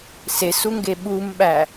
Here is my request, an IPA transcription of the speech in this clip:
s e s u ŋ ɡ e ɓ u m ɓ æ

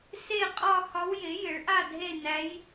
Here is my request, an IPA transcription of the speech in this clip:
s e˥˨ qʼ ɒ˥˨ h ɒ˧˥ w j ɪ˩˥ j ɪ˩˥ ɭ ʔ a˥˨ dʱ e˥˨ n æ˧˥ j

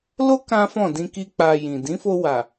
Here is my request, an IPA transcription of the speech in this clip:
l o˦ k ã˦ f ɔ̃˦˨ d ĩ˧ k i˦ k͡p a˧ j ĩ˨ d ĩ˨˦ f o˧ w a˨

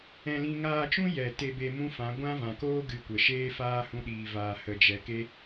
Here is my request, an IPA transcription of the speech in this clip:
ɛ̃˧ l ĩ˧ ŋ aː˧ t͡ʃ ũ˦ j ɛ˨ t e˧ b e˧ m ũ˦ f ã˨˦ ɡʷ ã˦ v ã˨ k oː˦ ɡ ɨ˧ kʷ ə˨ ʃ eː˦ f aː˦ h ũ˦ ɗ iː˧ v aː˧ h ə˧ d͡ʒ ɛ˧ k e˦

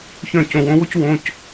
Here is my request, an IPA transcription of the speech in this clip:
ç œ̃˧˩ c õ˧˩ w õ˦ w o˦ c w õ˩˧˩ c

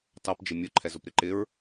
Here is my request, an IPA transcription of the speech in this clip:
t ɑ p d͡ʒ ɪ mʲ ʊ ǃʰ ɛ z ʊ p ɾ ɪ ǃ ɪ ɹ

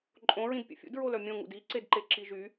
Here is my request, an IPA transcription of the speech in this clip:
ǃʼ õ ɹ ĩ d pʲ ə̰ fʲ ṵ d ɹ o l œ mʲ õ ŋ ṵ d i ǀ e d ǃ e ǁ i ʒ y

